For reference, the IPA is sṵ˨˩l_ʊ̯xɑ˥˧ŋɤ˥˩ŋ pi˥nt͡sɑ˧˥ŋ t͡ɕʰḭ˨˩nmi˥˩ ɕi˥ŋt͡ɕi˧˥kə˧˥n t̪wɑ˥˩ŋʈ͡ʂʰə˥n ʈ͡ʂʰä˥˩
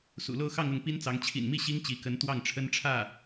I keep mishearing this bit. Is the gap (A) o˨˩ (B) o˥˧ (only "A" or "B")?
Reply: B